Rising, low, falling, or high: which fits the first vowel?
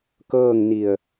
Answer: falling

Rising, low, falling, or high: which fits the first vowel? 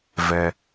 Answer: high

